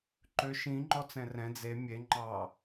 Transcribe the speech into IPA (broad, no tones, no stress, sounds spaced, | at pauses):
ǃ ø ʃ ĩ ŋ͡ǃ ɔ t͡s ɛ̃ r ɛ̃ d͡z e mʲ e ŋ͡ǃ ɑ